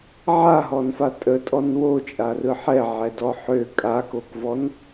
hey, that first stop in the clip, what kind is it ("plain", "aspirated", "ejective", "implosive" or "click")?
ejective